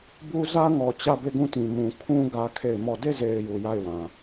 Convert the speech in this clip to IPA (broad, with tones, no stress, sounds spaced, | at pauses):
b u˦ z ä˦ ŋ ɔ˨ t͡ɕ ä˦˨ b e˦˨ ɡ ũ˦˨ t ĩ˨ m ũ˨ kʰ ũ˦ ɡ ä˦ kʰ e˦˨ ɪ̯ m ɔ˦˨ d e˦˨ z e˨ ɪ̯ j u˨ j a˦˨ ɪ̯ w ã˨